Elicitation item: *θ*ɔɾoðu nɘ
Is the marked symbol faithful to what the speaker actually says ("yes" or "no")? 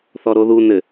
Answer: yes